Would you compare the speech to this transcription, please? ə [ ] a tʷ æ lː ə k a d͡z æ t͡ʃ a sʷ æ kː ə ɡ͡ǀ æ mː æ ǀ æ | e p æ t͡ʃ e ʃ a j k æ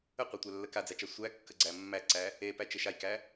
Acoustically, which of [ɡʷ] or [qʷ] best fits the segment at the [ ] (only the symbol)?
qʷ